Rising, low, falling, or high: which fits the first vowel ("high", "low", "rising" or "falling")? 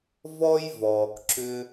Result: high